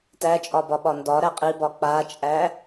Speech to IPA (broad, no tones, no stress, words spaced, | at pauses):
tæt͡ʃʼɒbɒɓɒ ndɒɾæ qʼibɒ k͡pat͡ʃʼæ